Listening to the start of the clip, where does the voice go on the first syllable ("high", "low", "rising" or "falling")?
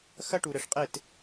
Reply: high